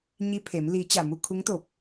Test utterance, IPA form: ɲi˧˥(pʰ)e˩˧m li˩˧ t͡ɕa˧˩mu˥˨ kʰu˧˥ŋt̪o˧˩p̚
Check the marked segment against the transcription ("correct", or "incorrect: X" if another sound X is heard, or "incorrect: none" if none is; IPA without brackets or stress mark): correct